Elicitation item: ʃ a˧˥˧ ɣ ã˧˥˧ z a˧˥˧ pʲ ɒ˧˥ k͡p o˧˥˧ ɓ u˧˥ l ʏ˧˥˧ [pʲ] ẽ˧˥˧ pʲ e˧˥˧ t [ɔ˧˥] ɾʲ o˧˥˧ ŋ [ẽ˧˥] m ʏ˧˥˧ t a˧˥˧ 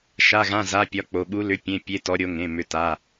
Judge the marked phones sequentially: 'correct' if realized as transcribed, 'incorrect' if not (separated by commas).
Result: correct, correct, incorrect